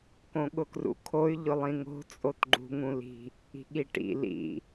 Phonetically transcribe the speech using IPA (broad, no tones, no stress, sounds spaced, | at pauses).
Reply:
k õ ɠ ʊ k r ṵ kʰ o y̯ ʎ ʊ lˠ ĩ ŋ o̤ t͡sʼ o t ɡ͡ǃ ṳ ŋ ũ l i̤ | i̤ ɠ i ʈ ḭ l ḭ